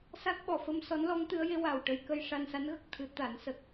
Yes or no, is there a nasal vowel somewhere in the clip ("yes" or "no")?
no